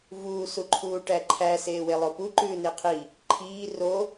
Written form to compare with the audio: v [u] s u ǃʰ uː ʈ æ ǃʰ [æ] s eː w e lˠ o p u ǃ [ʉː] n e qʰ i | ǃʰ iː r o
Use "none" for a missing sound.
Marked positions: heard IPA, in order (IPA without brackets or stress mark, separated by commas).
uː, æ, ʉː